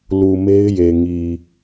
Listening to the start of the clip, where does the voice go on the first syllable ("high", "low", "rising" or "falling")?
low